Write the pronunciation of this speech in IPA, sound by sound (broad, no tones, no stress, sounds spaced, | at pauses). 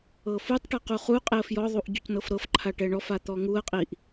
ɤ f u tˤ ʈ a q u χ u qʼ e ə̯ f j ɔ ðˤ u ʔ ɟ u c n ɤ f ɾ ɤ f ǃʰ a ʈ ɛ ɳ ɔ f a t̪ ɔ ŋ u ə̯ qʼ i ʔ